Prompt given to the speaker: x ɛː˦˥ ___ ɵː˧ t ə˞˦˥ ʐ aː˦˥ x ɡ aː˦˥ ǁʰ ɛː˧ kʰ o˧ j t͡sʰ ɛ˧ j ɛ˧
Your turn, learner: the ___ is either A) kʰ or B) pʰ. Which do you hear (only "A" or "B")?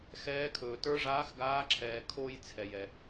A